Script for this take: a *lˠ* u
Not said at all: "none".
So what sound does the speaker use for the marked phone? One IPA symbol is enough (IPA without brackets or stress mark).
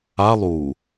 lˠ